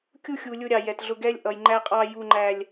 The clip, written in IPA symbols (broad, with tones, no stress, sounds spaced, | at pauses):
kʲ u˦ xʲ u˨ lʲ ʊ˦ ɾʲ ɑ˨ j ɛ˨ t ɮ ʊ˦ ɡ ɛ˦ lʲ ʔ ʌ˨ j ŋ͡ǃ æ˦ qʼ ɑ˦ j u˦ ŋ͡ǃ æ˦ lʲ